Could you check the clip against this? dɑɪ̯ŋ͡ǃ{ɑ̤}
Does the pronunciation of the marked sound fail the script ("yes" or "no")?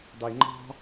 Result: no